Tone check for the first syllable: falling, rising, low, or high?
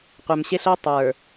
low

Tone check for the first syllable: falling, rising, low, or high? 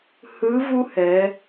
rising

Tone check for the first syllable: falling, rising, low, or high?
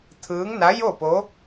rising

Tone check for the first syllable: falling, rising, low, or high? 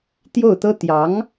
falling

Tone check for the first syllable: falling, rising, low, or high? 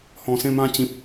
low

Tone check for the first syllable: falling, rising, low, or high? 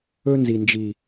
high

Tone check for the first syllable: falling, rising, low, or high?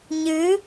rising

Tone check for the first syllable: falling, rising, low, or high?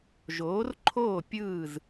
rising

